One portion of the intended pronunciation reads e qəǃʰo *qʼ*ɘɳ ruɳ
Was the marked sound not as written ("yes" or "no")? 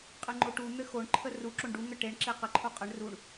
no